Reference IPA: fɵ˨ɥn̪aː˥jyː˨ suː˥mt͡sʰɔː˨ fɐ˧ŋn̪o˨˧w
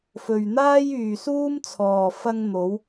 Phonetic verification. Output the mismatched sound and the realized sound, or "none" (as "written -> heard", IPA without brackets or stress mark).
none